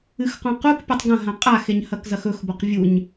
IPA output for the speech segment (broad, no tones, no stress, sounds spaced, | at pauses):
ɨ x q õ q u k pʲ o tˤ ɡ ɐ̃ ɦ ã qʼ a x e ɲ h ɐ k z ɐ x ɵ x b o q vʲ u ɲ